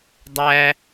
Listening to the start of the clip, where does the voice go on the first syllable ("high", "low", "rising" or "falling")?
high